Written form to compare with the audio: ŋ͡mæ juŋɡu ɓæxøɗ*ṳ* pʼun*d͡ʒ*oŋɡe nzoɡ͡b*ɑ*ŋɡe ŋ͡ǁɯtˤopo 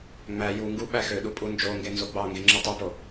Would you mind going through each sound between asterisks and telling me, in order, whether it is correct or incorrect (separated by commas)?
incorrect, correct, correct